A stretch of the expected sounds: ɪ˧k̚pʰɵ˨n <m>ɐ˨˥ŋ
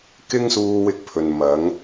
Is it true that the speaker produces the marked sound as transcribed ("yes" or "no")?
yes